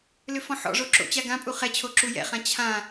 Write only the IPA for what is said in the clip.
l ʏ f ɔ̃ ħ ɔ̰ ʐ o ǁ o̰ t͡ɕ a ɡ ã pʼ u χ ɛ t͡ɕʰ o ǁ u j ɛ̰ χ ã t͡ɕʰ ã

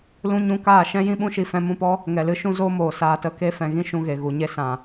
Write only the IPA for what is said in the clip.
l ũ˧ ɲ ũ˧ k aː˦˨ ʃ ɛ̃˦ j ĩ˦ ɓ ũ˦ ʃ i˧ f ɛ̃˧ m ũ˦˨ p ɔ˦ | ŋ ɛ˨ l ɨ˧ ʃ ũ˦ z oː˦ m oː˨ s aː˧ t ə˦ k e˦ f ɛ̃˨ ɣ ĩ˦ ʃ ũ˧ ɣ e˨ ɣ u˨ ɲ e˦ s ã˨

